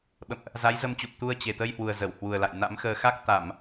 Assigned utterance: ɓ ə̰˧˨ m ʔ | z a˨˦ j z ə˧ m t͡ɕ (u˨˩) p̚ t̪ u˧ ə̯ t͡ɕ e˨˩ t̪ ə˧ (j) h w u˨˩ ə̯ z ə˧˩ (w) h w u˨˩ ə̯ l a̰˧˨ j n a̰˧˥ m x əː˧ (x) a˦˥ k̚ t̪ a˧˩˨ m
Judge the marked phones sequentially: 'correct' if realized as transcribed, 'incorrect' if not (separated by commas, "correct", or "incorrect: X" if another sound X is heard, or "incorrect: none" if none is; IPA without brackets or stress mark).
correct, correct, correct, correct